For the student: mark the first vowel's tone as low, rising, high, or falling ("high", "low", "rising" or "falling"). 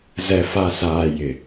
low